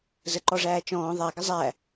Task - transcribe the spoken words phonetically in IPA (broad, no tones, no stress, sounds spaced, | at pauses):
z ə ǃ ɔ ʐ æː t͡ʃ ɔ̃ː ðˤ æ ɡ ɪ zˤ æ